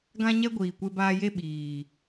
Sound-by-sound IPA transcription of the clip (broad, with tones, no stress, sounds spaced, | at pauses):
ɡ ã˧ ɲ ɛ˧ ɡʷ iː˨ kʷ e˧ b aː˧ j e˦ ɓ iː˨